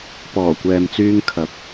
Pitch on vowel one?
low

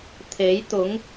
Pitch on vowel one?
rising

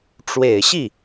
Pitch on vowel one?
low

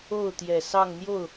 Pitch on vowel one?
falling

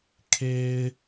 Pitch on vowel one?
low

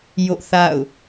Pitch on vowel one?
falling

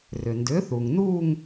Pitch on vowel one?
low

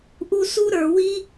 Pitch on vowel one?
high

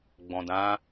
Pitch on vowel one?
low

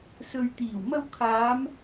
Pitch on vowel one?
low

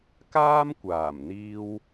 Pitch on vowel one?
high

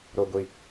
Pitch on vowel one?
low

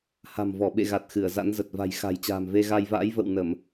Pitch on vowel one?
low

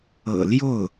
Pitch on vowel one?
low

